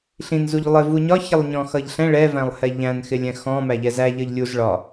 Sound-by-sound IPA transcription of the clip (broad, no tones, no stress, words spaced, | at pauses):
ɬĩnzuʎ lˠɪ vuɲɒ çɪlˠɲɔ̃xʌʎɬɛ̃ ɭɛvæ̃lˠhɛ ʎæ̃nxɪlʲɛ̃ xɔ̃mæʎɛ zæ ʎʌʎlʲuz ɭɒ